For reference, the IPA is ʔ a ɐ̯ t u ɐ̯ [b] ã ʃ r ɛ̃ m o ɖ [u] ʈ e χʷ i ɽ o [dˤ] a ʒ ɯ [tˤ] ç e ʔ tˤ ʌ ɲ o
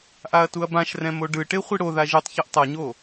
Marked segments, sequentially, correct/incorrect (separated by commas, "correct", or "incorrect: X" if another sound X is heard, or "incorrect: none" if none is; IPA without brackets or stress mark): correct, incorrect: ɯ, incorrect: ð, correct